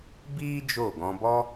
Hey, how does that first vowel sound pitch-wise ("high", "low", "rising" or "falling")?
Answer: high